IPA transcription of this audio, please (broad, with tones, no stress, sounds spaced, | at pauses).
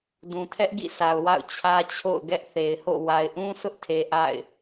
d ũ˨ tʰ ɛ˦ ʔ ɡ ḭ˦˨ sʰ a˨ ʊ̯ w a̰˦˨ ʊ̯ t͡ɕʰ ä˦ t͡ɕʰ o̰˦˨ ʊ̯ ɡ ɛ˦ ʔ θ e˨ ɪ̯ h o̰˦˨ w a˨ ɪ̯ ʔ ũ˦ s ʊ˦ ʔ tʰ e˨ ʔ a̰˦˨ ɪ̯